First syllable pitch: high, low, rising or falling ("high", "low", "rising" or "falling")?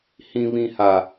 low